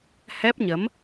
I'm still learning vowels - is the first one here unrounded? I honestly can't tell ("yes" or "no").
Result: yes